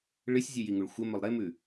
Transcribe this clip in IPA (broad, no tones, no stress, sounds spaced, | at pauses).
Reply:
ɭ ɨ sʲ zʲ ʉ j i ŋ u ɭ xʷ ɐ m ɵ lˠ ɾ e m ʉ